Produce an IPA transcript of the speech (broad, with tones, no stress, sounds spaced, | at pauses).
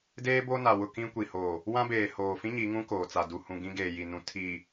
d eː˦ b o˦ n a˨ w ʊ˦˨ k ĩ˦ kʷ i˨ h oː˨ | w ã˦ b eː˨ h oː˨ f ĩ˦ ɲ i˨˦ ŋ ũ˦ k oː˨ t͡s a˨ d u˨ h ũ˨ ɡ ĩ˦ ɡ eː˨ j i˨ n ũ˨ tʰ iː˨